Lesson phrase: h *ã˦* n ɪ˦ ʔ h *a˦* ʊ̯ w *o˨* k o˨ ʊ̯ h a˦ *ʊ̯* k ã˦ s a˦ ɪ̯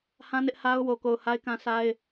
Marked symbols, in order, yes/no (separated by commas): yes, yes, yes, no